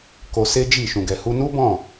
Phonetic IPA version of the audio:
k o˧ s e˦ d͡ʒ i˦˨ ʃ ũ˨ ɡ ɛ˨ h u˧ n u˦ b ɔ̃˦˨

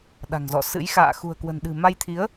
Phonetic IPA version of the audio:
ɗ a̤˨˩ ŋ z ɔ̰˧˨ s ɨ̰˧˥ j x a̰ː˧˨ x ṳ˨˩ ə̯ k w ə̤˨˩ n ɗ ɨ̤˨˩ m a˧ j t̪ʰ i˨˦ ə̯

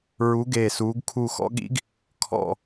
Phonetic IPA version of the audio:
ɹ u˧˥ ɡ eː˦˨ s uː˧˥ ɡ kʰ u˦˨ x ɔ̰˧˥ ɠ ḭ˧˥ ɡ | kʰ ɔ̰˦˨

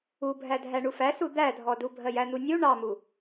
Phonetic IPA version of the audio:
u bʱ æ dʱ æ ɳ u f æ s u d̪ æ dʱ ɔ d u bʱ ɜ j æ n̪ u nʲ u ɳ ɑ m u

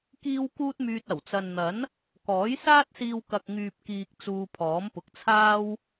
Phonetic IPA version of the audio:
k iː˥ w k uː˥ t̚ m yː˧ t̚ ɐ˨˩ w t͡s ɐ˨ n n̪ ɐ˨˥ n | k ɔː˨˥ j s aː˥ t̚ s iː˧ w k ɐ˨ k̚ ŋ yː˨ p̚ k iː˨ k̚ t͡s uː˧ pʰ ɔː˨˥ m p ʊ˨ k̚ t͡sʰ aː˥ w

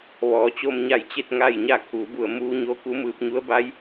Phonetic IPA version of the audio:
ʋ ɔː˩˧ t͡ɕ o˧ m ɲ a˧˩ j t͡ɕ e˥˨ t̚ ŋ a˥˨ j ɲ a˥˨ kʰ uː˩˧ b u˧˩ ə̯ m uː˧ ɲ o˧ k u˧˥ m ɯː˧ p̚ ɲ u˧˥ ə̯ b a˧˥ j

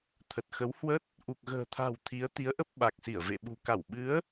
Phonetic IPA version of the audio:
t̪ʰ ə˨˩ t̚ x ə˨˦ w h w ə˦˥ t̚ | ʔ u˨˩ k̚ ɣ ə̤ː˨˩ t̪ʰ a̤˨˩ w t̪ʰ i˨˦ ə̯ t̪ i˨˦ ə̯ ʔ ə˦˥ p̚ ɓ a˨˩ k̚ s i˧˩ ə̯ v ḛ˧˨ ɓ ṳ˨˩ k a˧˩ w ɓ ɨ˨˦ ə̯

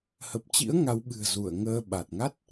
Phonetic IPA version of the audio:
h ə˨˩ p̚ t͡ɕ ḭ˧˥ ə̯ ŋ a˨˦ w ɓ ɨ̤˨˩ ə̯ z u˧˩ ə̯ ŋ əː˧ ɓ a˨˩ t̚ ŋ a˦˥ t̚

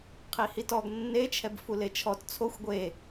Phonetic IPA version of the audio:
qʰ i h i t ɔ ɡ nː e t͡ʃʰ ɛ b f u l e t͡ʃʰ ɔ t t͡sʰ o xʷ ɡʷ e

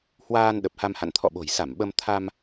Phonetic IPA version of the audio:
h w aː˧ n ɗ ə˨˩ p̚ h a˧ m h a̰˧˨ n t̪ʰ ɔ̰˧˨ ɓ o̤˨˩ j s a˧˩ m ɓ ə˧ m t̪ʰ a˧ m

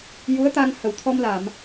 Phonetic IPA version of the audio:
j u˧˥ ə̯ t̪ a˧ ŋ h ə˨˩˦ w t̪ʰ ɔ˧ m l a˨˩˨ m

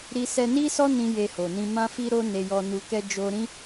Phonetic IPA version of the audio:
ɾ i˧ s ɛ˧ n i˦ s ɔ˦ n ĩ˦ j e˧ h o˨ n ĩ˧ m ã˦ f i˦ ɾ o˦ n e˧ j ɔ˧ n u˧ k ɛ˦ d͡ʒ o˧ ɾ ĩ˦

